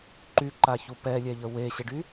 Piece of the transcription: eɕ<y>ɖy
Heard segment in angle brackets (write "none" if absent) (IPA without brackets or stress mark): e